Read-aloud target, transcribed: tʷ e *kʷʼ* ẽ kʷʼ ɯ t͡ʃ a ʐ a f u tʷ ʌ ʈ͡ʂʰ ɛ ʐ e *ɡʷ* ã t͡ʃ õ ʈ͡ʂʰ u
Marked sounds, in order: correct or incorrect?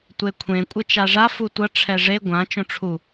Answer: incorrect, correct

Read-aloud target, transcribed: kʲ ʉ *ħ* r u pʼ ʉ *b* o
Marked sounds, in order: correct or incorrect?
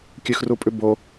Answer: incorrect, correct

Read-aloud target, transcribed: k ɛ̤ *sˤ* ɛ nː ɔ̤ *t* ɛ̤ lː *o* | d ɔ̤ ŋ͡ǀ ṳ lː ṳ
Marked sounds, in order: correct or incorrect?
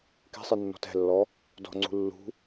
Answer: correct, correct, incorrect

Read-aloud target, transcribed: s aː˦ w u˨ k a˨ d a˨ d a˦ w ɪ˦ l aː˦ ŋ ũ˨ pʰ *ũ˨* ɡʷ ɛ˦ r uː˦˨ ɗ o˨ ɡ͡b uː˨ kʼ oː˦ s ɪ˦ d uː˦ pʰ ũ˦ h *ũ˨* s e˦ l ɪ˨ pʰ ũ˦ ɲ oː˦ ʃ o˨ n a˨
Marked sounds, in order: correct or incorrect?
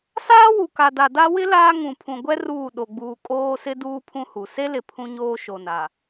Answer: correct, incorrect

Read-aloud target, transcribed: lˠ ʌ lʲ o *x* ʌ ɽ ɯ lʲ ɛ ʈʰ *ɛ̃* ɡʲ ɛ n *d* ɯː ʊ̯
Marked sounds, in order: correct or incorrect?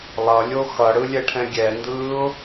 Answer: correct, correct, correct

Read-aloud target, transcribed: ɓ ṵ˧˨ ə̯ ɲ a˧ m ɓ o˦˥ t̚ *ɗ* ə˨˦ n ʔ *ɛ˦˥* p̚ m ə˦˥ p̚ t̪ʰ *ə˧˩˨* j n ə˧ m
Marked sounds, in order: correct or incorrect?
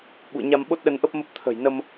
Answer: correct, incorrect, incorrect

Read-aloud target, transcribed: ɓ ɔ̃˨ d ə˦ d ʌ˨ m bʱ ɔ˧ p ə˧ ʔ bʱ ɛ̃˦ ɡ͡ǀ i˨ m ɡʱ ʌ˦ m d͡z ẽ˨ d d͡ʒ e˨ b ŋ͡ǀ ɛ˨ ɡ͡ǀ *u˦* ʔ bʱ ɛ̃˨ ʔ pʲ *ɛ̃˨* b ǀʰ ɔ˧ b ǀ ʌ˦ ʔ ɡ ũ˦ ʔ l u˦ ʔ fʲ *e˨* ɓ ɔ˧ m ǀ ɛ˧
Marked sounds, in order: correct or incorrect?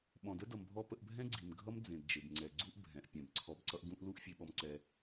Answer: correct, correct, incorrect

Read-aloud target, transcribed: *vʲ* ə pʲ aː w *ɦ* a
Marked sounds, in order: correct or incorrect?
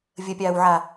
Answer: correct, incorrect

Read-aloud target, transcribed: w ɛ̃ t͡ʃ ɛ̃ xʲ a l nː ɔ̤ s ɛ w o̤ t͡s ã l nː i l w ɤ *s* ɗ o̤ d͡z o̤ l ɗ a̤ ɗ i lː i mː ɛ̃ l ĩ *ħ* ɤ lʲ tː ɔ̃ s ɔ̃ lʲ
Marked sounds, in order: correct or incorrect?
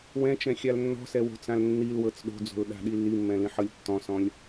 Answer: incorrect, correct

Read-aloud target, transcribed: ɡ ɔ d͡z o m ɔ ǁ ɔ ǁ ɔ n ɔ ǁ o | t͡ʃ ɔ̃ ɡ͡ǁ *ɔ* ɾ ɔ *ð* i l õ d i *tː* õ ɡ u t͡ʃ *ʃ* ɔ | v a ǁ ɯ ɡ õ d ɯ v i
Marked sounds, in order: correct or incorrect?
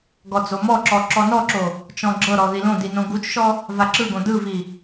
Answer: incorrect, correct, incorrect, correct

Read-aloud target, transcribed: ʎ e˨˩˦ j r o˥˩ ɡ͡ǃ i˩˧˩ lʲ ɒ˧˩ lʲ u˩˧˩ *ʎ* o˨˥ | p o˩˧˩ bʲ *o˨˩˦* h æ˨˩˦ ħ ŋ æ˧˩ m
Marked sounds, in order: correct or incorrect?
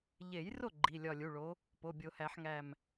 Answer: incorrect, correct

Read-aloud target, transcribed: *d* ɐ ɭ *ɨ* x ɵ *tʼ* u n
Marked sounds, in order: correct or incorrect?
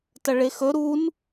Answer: incorrect, incorrect, incorrect

